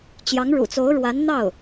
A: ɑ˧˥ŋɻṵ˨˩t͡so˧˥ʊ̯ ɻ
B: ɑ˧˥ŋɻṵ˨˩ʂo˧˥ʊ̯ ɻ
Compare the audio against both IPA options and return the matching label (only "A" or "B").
A